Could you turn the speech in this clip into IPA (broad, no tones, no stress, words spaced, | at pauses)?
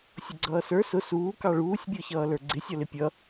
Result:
sʲʊɡ͡ǀʌːsə˞ sʊ suː kɑɭuːsʲ bʲɔçʌːlə˞ɡ͡ǀɪ sʲɔlɪpʲʌ